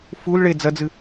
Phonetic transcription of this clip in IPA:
f u l ɭ e d͡z ɐ d͡z ɨ

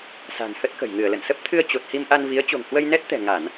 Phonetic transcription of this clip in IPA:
s a̤˨˩ n h ə˦˥ t̚ k ə̤˨˩ j ŋ ɨ˧˩ ə̯ l ə̰˧˨ n s ə˦˥ p̚ t̪ʰ ɨ˧ ə̯ t͡ɕ o˨˩ t̚ h i˧ m ʔ a˧ n v i˨˦ ə̯ t͡ɕ o̤˨˩ ŋ h w ə˧ j n ɛ˦˥ t̚ t̪ ɛ̤˨˩ ŋ a˧˩˨ n

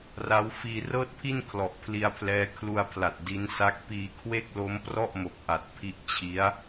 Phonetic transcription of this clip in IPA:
r a˦˥ w f iː˧ r ɤː˥˩ t̚ pʰ i˥˩ n kʰ l ɔ˨˩ ʔ pʰ l i˧ a̯ pʰ l ɛː˦˥ kʰ l u˧ a̯ pʰ l a˨˩ t̚ d i˦˥ n s a˦˥ k̚ p iː˧ kʰ w e˥˩ k̚ l o˦˥ m p r ɔ˥˩ ʔ m o˨˩ k̚ ʔ a˨˩ t̚ pʰ i˥˩ ʔ t͡ɕʰ i˦˥ a̯

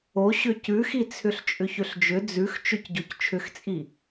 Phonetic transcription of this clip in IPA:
o ɕ ʏ c ʉ x i t͡sʰ ʏ ɬ t͡ʃʼ ʏ ç ʏ ɬ d͡ʒ ʏ d͡z ʉ x t͡ʃ ʏ c ɟ o c t͡ʃʰ ʏ x t͡sʼ i

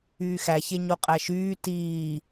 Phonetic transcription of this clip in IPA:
yː x æ ç e ɲ o qʼ æ ʃ yː t iː

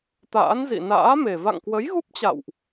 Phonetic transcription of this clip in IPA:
t̪ a̰ː˧˥ n z ḭ˧˨ n a̰ː˧˥ m e˨˩ v a̰˧˨ ŋ k w ə˨˦ j ɣ u˦˥ p̚ t͡ɕ a̰˧˨ w ʔ

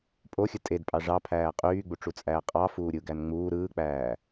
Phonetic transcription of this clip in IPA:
pʼ o xʲ ɯ tʼ e d pʼ ɑ ʐ ɑ pʰ æː qʼ yː ɡ͡b u ʈ͡ʂ u t͡sʼ æː qʼ ɑ f uː ɾʲ ɯ ɡ æ n ŋ͡m uː ɾ ɯː k͡p æː

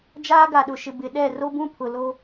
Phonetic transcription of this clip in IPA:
d͡ʒ aː˦ ɡ a˨ ɗ ʊ˨ ʃ ɪ˨ b ɪ˨ ɗ ɛ˦˨ r o˦ b ũ˦ pʰ ʊ˨ l o˦

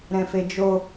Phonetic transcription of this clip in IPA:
ɾ ɛ̃ f e d͡ʒ o

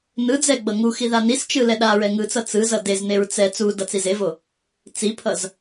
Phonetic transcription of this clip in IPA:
n ɯ d͡z ɛ ɡ͡b ʌ ŋ u x i ð a n i s t͡ʃ ɯ l ɛ ɗ a ɹ ɛ ŋ ɯ t͡s ʌ t͡s ɯ z ʌ d e z n e ɹ t͡s ɛ t͡s u d ʌ t͡s i z e v o | t͡s i pʰ ʌ z

